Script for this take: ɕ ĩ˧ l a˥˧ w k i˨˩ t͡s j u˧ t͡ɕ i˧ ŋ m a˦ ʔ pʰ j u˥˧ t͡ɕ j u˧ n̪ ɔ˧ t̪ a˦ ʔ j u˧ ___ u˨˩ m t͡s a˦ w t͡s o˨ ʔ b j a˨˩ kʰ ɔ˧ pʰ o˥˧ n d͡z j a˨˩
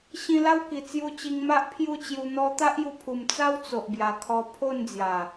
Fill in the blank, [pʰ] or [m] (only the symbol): pʰ